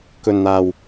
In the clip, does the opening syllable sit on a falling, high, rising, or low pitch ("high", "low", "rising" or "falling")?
low